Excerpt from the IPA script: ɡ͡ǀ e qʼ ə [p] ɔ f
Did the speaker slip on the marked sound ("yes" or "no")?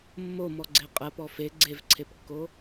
no